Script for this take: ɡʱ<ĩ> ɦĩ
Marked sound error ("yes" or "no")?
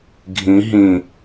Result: no